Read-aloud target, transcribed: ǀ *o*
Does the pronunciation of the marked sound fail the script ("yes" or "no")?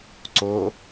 no